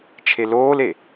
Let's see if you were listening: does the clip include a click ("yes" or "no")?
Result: no